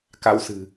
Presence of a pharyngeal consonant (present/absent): absent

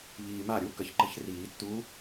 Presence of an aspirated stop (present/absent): absent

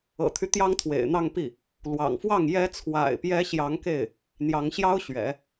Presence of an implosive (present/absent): absent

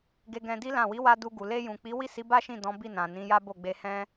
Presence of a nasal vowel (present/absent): present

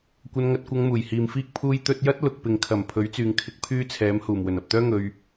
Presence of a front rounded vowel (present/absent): present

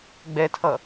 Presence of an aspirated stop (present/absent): present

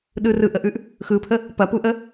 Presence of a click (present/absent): absent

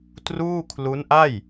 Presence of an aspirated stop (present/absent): present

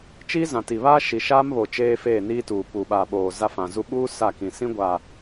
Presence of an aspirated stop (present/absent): absent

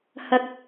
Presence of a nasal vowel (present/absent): absent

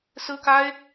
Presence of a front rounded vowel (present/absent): absent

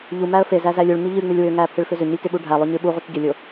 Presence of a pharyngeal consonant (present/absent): absent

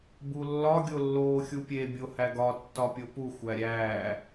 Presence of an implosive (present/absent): absent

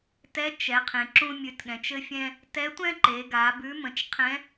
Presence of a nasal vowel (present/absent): present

